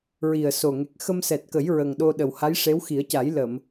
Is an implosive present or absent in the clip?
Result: present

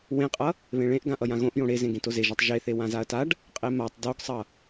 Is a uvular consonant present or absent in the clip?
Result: present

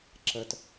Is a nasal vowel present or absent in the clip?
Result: absent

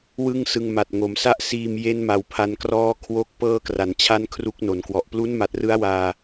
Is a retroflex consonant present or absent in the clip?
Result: absent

